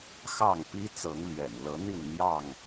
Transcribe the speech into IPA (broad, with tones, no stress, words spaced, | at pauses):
xɑ˥˨ŋpi˦t͡sɤ˨˦ŋ lɥɛ̰˨˩nlɤ˨˦ n̪i˥˨nn̪jɑ˥˨ŋ